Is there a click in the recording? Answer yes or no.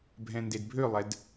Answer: no